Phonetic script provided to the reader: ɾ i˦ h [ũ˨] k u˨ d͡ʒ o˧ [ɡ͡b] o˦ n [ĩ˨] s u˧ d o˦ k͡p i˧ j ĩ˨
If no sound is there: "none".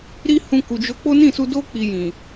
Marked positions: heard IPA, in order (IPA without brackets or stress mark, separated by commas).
ũ˧, k͡p, ĩ˦˨